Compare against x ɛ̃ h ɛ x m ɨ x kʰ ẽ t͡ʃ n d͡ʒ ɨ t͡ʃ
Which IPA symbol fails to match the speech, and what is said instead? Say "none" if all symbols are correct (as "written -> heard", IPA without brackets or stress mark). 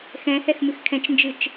ẽ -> ɛ̃